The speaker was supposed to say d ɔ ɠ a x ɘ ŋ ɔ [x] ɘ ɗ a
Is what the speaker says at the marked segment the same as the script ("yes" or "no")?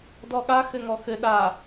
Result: yes